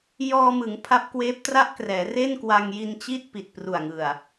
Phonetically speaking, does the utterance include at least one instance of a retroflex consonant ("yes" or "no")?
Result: no